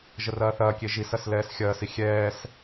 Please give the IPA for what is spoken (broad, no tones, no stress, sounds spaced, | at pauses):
ʒ ə r ɐː θ ɐː kʲ e ʒ i s ɐ s l ɛː s xʲ ɐː s i xʲ ɛː s